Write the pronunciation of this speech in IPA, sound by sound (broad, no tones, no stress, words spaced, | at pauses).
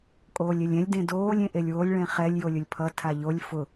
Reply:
kʼoːlʲelʲɛ̃lʲ dẽdoːlʲ ẽʔelʲwolʲ ɭɛ̃χɛlʲ jolʲʊlʲpʰʌ tʰaʎolʲ fʊ